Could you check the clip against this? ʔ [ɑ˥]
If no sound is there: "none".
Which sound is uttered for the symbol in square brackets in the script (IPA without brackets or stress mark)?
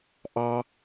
ɑ˥